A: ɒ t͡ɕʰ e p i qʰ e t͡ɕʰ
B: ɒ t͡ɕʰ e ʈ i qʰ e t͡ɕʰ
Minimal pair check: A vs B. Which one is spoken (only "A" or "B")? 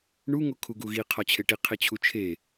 B